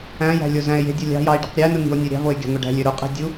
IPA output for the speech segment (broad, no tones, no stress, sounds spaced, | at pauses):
æ̃ j æ̤ lʲ o z æ̃ e̯ j e̤ dʲ o lʲ ɑ̤ j ɑ e̯ ɖ i q ɾʲ æ n ɯ n i̤ o̯ nʲ ø ɾʲ ɑ̤ v o e̯ ɡʲ ɑ̤ ŋʷ e ɖ æ̤ lʲ ø ɾ u qʼ i̤ dʲ u